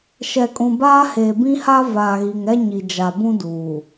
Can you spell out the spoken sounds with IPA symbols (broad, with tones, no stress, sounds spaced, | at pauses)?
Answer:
ʃ ɛ˨ kʼ ũ˨ b aː˦ h eː˨ b ĩ˦ h a˦ v aː˨ ɣ i˨ ŋ ɛ˦ ɲ i˨ d͡ʒ a˨ b ũ˦ d uː˨